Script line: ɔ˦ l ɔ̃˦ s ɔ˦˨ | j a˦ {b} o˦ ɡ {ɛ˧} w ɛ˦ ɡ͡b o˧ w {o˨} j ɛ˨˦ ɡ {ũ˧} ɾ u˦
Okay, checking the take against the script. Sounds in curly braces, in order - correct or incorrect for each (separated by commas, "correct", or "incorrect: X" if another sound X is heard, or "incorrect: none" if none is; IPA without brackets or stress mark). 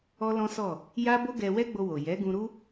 correct, correct, correct, correct